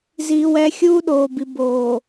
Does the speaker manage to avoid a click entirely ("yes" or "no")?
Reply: yes